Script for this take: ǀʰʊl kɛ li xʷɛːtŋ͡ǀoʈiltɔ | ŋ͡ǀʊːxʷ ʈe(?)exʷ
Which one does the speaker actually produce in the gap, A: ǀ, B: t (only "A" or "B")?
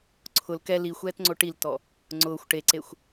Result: A